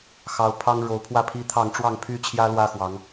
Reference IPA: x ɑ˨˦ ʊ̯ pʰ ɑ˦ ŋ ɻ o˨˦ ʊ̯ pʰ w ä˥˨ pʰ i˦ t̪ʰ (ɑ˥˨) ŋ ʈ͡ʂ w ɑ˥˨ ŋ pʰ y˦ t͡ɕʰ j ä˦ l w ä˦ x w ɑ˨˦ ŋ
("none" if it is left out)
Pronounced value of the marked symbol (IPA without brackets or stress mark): ɑ˥˨